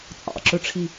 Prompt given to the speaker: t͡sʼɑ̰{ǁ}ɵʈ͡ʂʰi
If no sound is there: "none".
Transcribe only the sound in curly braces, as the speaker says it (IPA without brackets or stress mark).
ǁ